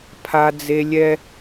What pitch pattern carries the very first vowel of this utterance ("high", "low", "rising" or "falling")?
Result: high